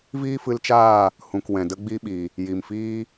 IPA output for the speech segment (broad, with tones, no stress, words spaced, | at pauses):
viː˦fɨ˧lt͡ʃaː˦˨ | hũ˨k wɛ̃˨də˦ɡ͡bi˦ɓi˨ | ji˨mfiː˦